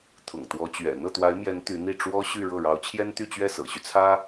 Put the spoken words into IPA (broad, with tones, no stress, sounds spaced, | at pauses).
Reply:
t̪ʰ ʊ̰˨˩ ŋ t̪ w ɔ˧˥ t͡ɕ ɥ ɛ̰˨˩ n̪ ɤ˥˩ t̪ w a˧˥ ɪ̯ m j ɛ˧˥ n t̪ y˧˥ n̪ i˥˩ ʈ͡ʂ w ɔ˥ ɕ y˥˧ ɻ ɤ˥˩ ɻ ɑ˧˥ ʊ̯ t͡ɕʰ j ɛ˥ n t̪ y˥˧ t͡ɕ ɥ ɛ˥˩ s ɤ̰˨˩ ɕ y˦ t͡sʰ ä˥